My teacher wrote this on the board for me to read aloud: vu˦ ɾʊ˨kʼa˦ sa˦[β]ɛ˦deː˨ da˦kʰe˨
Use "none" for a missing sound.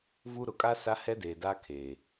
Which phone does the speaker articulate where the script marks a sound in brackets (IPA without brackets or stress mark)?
h